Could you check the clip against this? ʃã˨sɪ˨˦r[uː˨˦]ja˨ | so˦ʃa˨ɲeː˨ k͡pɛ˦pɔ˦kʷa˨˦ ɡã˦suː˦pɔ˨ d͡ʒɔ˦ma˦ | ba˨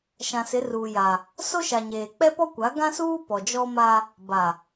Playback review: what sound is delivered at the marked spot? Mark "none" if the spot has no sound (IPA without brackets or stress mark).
uː˨